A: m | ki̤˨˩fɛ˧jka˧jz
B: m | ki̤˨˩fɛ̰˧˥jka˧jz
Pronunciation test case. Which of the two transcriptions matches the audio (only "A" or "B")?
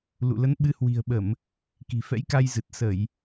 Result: B